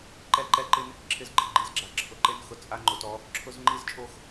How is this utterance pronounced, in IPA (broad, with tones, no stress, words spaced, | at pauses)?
ǃɛ˦ ǃɛ˦ǃɪ˦n | ǁʰɪ˦zɡ͡ǃɪ˨ ɡ͡ǃi˦zɡ͡ǁa˨ǁʰʊ˨ ǃe˦n xʊ˨t͡sʼa˦ŋ͡ǃo˨tɔ˦ | ǁʰʊ˦zŋ͡ǃi˦zt͡ʃʼo˦x